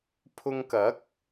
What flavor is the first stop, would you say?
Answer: aspirated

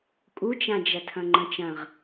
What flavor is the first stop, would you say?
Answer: ejective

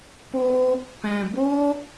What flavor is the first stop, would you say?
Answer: plain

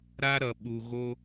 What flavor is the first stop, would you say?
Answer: implosive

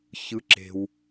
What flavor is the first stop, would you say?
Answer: click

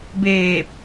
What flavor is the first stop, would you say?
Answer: plain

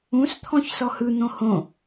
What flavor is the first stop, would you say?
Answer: aspirated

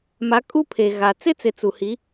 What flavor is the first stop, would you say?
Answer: ejective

